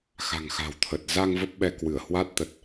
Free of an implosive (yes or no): no